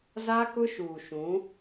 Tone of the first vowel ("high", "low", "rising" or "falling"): high